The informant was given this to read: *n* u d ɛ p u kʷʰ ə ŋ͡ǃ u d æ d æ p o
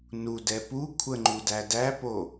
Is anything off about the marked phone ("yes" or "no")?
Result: no